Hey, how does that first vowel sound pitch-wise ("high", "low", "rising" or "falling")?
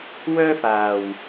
high